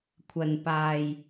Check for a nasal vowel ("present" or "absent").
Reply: absent